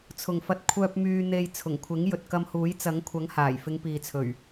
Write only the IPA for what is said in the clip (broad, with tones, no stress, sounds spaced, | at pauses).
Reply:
t͡sʰ ʊ˨ ŋ f ɐ˧ t̚ kʷʰ œː˧ p̚ m yː˧ n̪ e˧ j t͡sʰ ʊ˨˩ ŋ kʷʰ ɪ˨˥ ŋ j ɵ˨ t̚ k ɐ˧ m h uː˨˥ j t͡s ɐ˨˥ ŋ kʷʰ ɐ˨˥ ŋ h aː˨˩ j f ɪ˨˧ ŋ p iː˨ t͡sʰ ɵ˨˩ ɥ